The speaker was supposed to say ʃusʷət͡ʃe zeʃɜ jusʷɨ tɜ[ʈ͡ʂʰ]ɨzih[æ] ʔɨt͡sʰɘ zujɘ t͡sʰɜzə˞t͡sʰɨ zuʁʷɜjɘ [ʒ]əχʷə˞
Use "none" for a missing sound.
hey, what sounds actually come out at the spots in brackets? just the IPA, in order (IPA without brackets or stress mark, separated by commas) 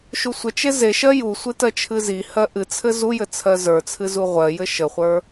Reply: t͡ʃʰ, ɜ, ʃ